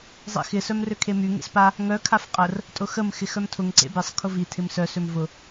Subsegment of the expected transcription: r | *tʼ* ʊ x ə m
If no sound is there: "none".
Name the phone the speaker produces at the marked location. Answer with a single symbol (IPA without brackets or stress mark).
tʼ